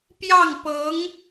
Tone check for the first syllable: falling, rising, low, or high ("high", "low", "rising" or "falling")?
falling